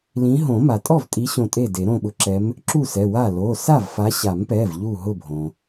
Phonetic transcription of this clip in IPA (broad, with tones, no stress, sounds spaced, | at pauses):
l ĩ˨˦ ɦ õ˨˩˦ m a˩ tʼ ɔ˥˩ v tʼ i˨˦ ɕ õ˧˩ tʼ e˥˩ d e˨˩˦ ɾ õ˧˩ ɓ ʊ˨˦ ǁ ɛ˨˦ m | ǁ u˥˩ s ɛ˩˧˩ w a˥˩ l o˩˧˩ s a˥˩ v f a˨˦ ɕ a˨˩˦ m p ɛ˩˧˩ v ʎ u˧˩ ɦ ʊ˧˩ bʱ õ˩